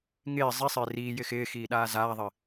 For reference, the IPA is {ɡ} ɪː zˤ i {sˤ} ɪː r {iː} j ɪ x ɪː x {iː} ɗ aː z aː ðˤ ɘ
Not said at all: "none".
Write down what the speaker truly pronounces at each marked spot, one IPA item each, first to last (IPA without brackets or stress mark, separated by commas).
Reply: ŋ, sˤ, iː, iː